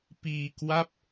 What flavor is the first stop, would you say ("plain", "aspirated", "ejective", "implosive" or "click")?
plain